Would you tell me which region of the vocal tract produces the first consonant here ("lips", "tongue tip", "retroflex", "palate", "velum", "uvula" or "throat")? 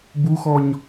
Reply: lips